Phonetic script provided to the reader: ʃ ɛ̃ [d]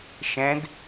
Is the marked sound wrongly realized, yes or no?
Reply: no